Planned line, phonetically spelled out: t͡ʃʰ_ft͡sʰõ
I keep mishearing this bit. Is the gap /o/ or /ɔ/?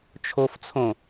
o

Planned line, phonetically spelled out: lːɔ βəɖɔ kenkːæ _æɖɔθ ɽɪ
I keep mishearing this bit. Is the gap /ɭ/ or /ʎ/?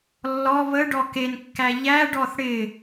ʎ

